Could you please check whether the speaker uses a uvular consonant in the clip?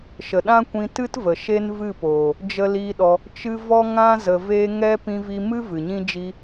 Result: no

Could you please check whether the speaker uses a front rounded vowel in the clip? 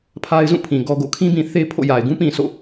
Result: no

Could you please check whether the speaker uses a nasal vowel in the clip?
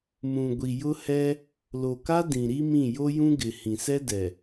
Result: yes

